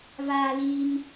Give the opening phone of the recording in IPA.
v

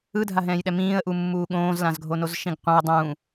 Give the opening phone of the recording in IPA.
ɯ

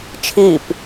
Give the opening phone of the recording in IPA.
t͡ʃʰ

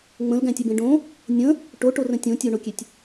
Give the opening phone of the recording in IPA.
ŋ͡m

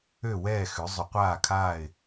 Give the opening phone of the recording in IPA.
ø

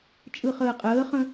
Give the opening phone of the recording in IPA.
t͡ʃʼ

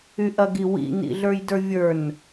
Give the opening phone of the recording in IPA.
y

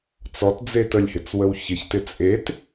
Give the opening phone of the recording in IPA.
t͡s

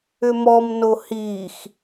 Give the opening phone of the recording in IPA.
ʏ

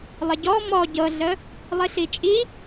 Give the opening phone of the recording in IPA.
lˠ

